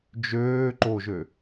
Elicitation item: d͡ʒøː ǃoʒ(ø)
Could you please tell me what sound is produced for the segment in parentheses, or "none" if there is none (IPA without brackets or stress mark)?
ø